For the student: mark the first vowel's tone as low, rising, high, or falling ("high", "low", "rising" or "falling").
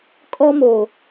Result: high